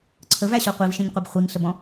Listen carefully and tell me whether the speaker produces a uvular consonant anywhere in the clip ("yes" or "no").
yes